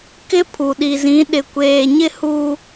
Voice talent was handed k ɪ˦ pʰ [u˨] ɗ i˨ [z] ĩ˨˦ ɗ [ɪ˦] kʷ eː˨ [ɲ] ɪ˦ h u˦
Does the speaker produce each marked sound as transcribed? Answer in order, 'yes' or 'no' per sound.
yes, yes, no, yes

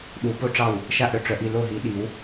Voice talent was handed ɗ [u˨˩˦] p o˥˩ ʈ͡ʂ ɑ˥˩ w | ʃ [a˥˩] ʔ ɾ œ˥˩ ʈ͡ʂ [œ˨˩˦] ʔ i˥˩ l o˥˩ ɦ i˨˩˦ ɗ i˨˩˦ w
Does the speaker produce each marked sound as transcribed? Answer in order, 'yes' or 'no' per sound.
yes, yes, yes

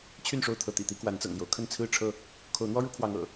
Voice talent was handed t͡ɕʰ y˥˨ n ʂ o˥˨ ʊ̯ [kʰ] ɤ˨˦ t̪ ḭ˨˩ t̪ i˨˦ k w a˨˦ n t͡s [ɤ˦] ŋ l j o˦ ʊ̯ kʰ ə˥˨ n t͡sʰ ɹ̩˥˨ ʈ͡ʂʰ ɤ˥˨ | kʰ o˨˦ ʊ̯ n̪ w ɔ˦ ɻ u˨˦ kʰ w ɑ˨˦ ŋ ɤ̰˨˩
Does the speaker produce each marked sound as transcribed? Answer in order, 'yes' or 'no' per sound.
no, no

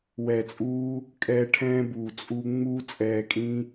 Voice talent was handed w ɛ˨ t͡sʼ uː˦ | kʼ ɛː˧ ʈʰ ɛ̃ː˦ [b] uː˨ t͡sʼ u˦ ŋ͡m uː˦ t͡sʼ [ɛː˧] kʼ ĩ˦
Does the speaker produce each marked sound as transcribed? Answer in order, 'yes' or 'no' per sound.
yes, yes

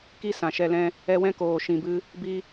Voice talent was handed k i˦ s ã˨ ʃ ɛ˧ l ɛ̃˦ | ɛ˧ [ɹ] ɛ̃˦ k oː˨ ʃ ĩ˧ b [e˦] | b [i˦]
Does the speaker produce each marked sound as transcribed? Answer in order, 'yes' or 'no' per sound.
no, no, yes

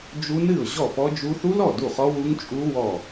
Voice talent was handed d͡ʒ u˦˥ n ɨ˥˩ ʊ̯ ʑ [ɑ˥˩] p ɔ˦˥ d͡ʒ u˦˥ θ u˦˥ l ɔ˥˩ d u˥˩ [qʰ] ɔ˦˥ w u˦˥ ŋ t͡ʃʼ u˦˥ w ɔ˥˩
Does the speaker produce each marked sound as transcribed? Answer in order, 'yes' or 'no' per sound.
no, no

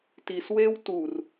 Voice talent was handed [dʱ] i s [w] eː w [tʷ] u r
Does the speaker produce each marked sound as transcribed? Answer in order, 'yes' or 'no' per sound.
no, yes, no

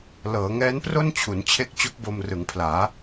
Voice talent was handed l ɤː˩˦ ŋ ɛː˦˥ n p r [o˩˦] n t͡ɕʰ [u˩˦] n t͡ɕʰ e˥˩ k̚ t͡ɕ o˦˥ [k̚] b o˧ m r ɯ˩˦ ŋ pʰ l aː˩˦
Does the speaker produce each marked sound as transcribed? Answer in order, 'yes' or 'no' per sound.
no, yes, yes

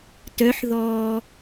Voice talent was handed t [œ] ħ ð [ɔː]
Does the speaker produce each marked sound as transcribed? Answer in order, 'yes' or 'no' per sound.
yes, yes

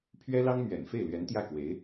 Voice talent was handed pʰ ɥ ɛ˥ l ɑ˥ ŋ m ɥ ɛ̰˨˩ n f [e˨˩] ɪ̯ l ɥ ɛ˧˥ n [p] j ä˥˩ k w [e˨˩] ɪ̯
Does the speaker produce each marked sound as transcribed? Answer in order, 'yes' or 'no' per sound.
no, no, no

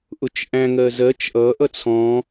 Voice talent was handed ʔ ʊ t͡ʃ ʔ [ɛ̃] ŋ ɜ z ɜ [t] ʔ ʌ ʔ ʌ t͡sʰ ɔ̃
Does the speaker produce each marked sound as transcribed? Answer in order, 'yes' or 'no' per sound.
no, no

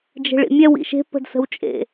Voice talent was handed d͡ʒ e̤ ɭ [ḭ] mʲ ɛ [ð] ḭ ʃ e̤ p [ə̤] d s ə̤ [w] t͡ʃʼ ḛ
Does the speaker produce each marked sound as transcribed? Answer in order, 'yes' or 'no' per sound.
yes, no, yes, yes

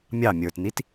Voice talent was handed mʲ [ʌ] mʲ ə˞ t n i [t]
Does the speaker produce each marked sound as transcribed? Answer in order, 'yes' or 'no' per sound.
no, yes

